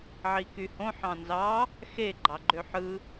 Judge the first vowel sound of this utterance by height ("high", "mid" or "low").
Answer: high